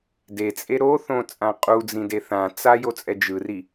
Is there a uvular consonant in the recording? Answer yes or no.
yes